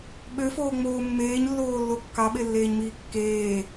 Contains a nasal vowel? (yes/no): no